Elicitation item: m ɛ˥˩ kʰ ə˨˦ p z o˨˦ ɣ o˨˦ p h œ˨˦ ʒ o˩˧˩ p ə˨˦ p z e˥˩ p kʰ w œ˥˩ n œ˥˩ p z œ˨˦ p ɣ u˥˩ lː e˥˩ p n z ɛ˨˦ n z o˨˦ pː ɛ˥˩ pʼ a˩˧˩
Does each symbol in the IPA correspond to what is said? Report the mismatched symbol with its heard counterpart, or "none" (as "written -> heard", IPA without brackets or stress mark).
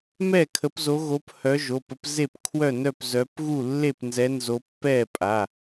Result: none